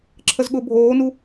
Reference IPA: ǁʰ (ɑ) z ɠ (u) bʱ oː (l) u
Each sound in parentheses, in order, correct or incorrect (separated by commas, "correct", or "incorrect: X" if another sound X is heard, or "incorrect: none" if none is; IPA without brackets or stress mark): incorrect: ə, incorrect: ʊ, incorrect: n